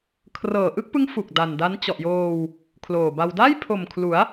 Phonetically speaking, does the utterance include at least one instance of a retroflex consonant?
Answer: no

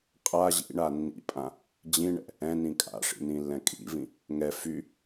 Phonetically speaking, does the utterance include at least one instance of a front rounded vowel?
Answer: yes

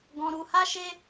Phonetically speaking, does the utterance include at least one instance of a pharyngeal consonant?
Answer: no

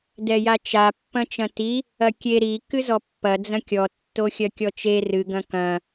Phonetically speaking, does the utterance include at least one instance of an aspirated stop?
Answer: no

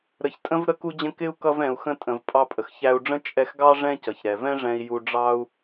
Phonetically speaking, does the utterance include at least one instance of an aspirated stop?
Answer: no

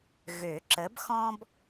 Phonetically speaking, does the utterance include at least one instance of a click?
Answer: yes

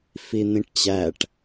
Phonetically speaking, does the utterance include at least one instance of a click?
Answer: no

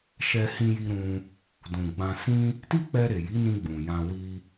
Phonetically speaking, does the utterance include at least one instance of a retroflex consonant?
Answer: no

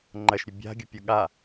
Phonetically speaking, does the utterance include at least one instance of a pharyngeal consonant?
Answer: no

